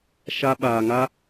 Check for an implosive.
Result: present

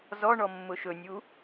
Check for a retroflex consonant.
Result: present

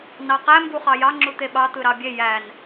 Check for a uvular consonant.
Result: present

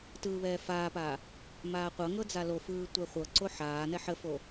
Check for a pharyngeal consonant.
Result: present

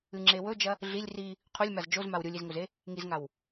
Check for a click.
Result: present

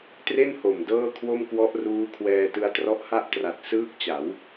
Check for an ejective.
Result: absent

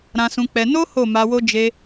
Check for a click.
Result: absent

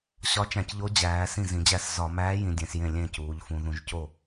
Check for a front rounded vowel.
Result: absent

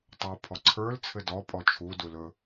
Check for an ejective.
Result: present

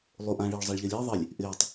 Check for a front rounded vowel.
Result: absent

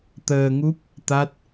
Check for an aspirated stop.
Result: absent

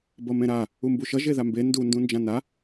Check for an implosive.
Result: absent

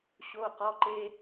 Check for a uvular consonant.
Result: present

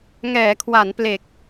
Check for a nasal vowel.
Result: absent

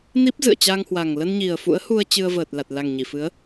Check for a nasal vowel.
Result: absent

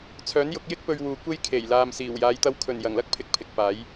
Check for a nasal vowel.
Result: absent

